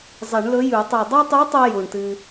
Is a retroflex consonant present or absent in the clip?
present